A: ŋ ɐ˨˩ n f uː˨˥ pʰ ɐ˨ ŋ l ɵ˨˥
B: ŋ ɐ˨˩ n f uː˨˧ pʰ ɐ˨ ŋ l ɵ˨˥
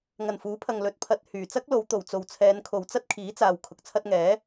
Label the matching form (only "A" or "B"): A